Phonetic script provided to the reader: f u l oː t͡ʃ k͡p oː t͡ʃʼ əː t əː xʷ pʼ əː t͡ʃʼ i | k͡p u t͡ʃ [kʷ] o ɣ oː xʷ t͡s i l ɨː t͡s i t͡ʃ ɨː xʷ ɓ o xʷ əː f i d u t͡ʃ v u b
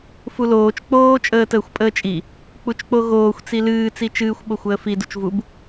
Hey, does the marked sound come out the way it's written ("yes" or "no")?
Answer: no